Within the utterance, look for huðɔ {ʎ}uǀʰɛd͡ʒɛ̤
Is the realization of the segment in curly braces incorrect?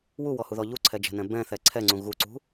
no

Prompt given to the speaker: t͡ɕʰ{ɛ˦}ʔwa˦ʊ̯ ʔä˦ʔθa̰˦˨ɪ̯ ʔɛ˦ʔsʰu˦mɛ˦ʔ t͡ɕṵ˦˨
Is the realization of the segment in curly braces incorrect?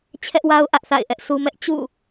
no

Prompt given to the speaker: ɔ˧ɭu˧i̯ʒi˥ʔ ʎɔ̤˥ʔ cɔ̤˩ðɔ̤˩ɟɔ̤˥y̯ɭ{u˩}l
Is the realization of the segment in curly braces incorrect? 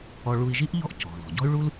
yes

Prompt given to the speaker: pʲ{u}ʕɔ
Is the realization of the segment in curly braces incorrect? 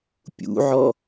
yes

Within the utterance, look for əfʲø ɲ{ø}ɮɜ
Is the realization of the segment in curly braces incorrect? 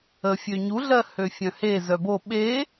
yes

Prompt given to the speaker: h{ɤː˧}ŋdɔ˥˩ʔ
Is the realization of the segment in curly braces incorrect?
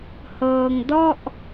no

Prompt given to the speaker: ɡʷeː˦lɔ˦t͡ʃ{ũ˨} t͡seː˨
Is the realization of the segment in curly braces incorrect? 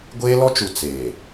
yes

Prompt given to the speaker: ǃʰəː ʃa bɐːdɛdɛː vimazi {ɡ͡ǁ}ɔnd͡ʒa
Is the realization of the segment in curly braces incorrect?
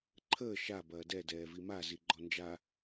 yes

